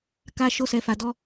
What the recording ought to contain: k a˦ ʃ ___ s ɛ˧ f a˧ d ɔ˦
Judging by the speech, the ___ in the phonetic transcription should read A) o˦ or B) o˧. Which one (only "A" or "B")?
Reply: A